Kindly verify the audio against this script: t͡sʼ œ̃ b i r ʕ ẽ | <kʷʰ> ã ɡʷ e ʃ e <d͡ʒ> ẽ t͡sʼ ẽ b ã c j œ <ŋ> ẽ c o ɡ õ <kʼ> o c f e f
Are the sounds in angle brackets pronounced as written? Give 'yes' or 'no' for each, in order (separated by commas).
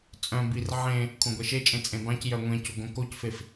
yes, no, no, no